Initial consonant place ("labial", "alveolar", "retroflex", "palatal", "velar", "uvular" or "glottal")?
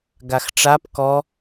velar